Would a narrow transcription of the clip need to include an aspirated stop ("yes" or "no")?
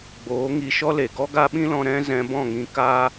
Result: no